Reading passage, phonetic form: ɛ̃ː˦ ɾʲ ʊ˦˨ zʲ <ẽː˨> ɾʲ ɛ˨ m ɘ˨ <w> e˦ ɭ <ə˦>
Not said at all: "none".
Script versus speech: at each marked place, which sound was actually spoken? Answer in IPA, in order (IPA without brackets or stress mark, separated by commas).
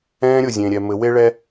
ẽ˨, w, ɛ˦